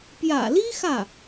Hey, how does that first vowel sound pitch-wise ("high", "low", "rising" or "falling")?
low